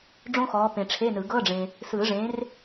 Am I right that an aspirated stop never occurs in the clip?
no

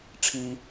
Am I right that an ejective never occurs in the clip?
yes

